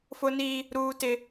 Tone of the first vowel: high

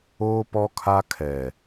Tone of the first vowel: high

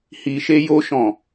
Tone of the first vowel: low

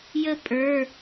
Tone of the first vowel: high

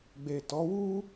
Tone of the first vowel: low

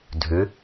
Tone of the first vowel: rising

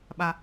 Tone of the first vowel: low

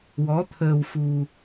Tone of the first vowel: rising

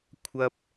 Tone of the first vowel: high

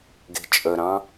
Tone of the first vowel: low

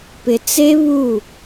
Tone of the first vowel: low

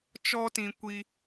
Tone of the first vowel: high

